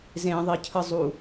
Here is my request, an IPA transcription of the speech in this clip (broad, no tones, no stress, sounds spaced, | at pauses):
z ẽ ðˤ i cʰ ɯ zˤ u